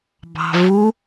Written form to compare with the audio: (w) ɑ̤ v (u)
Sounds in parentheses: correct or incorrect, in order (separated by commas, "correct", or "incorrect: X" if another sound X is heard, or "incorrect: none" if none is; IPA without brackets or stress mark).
incorrect: b, correct